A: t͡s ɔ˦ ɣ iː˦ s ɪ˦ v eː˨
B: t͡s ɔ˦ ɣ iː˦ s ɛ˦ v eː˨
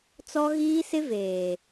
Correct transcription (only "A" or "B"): A